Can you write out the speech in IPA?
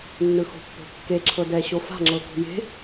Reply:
nː ɯ x o̤ pː o̤ kː e ǁʰ ɤ d ɛ ɕ o f a̤ ŋ͡ǁ ɤ k ṳ j e̤

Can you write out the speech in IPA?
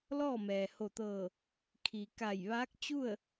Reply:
l ɔː˥˨ m ɛː˩ h o˧˩ t̪ ɤː˧˩ | kʰ i˩ k a˧˩ j ʋ aː˧˥ k̚ t͡ɕ u˥˨ ə̯

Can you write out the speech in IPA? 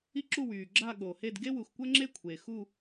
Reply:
i˥ ǁ u˥˧ w yː˨ ɡ͡ǁ a˥˧ ɠ oː˨ h e˥˧ d ɡ e˥ w u˨ x kʷ ə˥ ŋ͡ǁ e˥˧ kʷʰ eː˨ x u˥˧

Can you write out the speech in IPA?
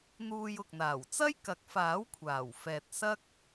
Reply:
n̪ uː˧ j ʊ˨ k̚ n̪ aː˨˩ w t͡s ɐ˥ j k ɐ˨˥ k̚ f aː˨˥ w kʷʰ aː˨˩ w f ɛː˨ t̚ s ɐ˥ k̚

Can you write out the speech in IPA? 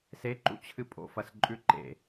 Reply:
s e ǃ ṵ t͡ɕʰ ɨ pʼ o̰ f ɐ s ǃʼ ʉ ǃ ḛ

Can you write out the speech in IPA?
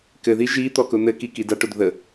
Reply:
k ɘ ð i ʒ i t̪ ɔ k ʊ n̪ ɘ k i k i d a ʈ ʊ d ð ə

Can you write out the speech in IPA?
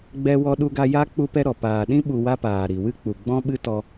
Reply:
ɡ͡b ɛ˦ w ɔ˦ ɗ u˦ ɡ a˦ j a˦ k͡p u˦ p ɛ˦ ɾ ɔ˨ p aː˨ ɗ ĩ˦ ɓ u˧ w a˦ p aː˨ ɾ i˨ w ɨ˦ k͡p u˨ ɡ͡b ɔ̃˦ ɓ ɨ˦ t ɔ˧

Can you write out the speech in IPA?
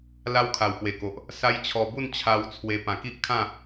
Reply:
l a˦ w kʰ a˨˩ w p w e˨˩ k o˨ ʔ | s a˦ j t͡ɕʰ ɔ˧ b u˥˧ n t͡ɕʰ a˧ w t͡sʰ w e˧ p ã˨˩ k i˦ ʔ kʰ ã˥˧

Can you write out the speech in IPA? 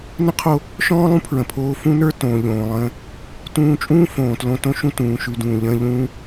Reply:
n ə̃˥ qʰ o˧ | ʃ ɔ̃ː˥ lˠ ũ˥ pʰ ɹ ə̃˩ pʰ oː˧ f ũ˥ n ə˞˥ t õː˩ ʎ õː˩ lˠ ə̃ː˧ | t ũː˧ t͡ʃʼ ũː˥ f õː˩ t l õ˧ t õ˥ ʃ ũ˥ t ũː˩ ʃ ʉ˧ d ũː˩ ʎ ə̃ː˥ ʎ ũː˥

